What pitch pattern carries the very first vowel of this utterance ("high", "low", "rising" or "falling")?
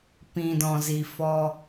low